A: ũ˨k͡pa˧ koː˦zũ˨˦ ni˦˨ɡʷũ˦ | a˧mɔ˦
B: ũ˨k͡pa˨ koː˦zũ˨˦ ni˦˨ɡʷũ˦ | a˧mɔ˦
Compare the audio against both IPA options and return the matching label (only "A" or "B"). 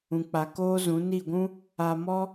B